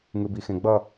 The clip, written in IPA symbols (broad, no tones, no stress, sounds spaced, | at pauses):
ŋ ɯ b i x ẽ ɡ͡b ʌ